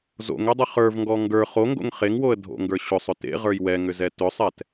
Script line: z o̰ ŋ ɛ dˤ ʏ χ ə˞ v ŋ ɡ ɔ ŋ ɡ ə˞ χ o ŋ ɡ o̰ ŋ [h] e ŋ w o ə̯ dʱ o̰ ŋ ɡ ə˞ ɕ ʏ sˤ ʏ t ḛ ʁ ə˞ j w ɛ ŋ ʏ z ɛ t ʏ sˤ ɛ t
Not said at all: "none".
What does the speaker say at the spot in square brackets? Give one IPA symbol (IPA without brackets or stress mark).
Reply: χ